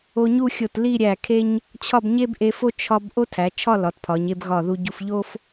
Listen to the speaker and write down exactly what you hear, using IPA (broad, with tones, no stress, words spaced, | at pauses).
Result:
o˧ɲu˥˧xʲo˧˩t li˥˧ɾʲæ˧˩kʰe˥ɲ | t͡ɕʰɒ˥˧b ɲe˥bʔe˧fo˥ t͡ʃʰɒ˧b ʔo˥tʰæ˩˧t͡ʃʰɒ˥˧ lɒ˩˧tpʰɒ˩˧ɲe˥˧b ɣɒ˧˩ðu˧ɟu˧f ʎo˥f